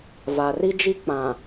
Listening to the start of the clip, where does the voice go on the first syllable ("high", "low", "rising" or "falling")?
low